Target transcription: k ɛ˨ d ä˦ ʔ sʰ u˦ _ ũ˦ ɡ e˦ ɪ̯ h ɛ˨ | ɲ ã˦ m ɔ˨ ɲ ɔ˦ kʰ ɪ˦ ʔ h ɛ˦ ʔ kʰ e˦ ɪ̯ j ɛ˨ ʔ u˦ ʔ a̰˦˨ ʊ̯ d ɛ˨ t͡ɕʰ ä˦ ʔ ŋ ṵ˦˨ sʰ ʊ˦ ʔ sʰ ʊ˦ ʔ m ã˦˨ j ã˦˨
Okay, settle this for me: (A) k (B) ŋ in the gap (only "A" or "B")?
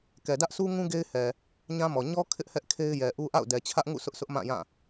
B